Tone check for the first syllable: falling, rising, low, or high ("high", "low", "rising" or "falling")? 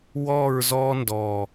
falling